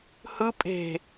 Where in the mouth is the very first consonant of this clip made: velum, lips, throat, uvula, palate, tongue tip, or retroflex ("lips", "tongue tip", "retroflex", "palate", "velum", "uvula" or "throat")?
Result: throat